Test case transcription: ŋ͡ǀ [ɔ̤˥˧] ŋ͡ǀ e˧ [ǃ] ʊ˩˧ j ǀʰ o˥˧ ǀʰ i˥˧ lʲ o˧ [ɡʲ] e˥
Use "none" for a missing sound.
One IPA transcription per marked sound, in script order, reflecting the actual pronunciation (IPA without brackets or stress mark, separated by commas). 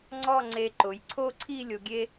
ɔ˥˧, ǃ, ɡʲ